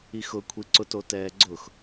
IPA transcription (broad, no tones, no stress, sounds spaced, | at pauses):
i x ʊ kʷʰ i ǀ ʊ t o t ɛː ɡ͡ǀ ʊ x